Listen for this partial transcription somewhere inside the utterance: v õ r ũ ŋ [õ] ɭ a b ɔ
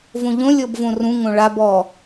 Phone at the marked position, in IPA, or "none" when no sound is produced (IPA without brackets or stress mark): õ